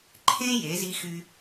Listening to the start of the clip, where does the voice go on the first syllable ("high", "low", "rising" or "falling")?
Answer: high